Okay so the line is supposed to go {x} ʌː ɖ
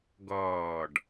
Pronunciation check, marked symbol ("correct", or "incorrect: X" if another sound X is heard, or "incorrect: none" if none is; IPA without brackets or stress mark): incorrect: ɡ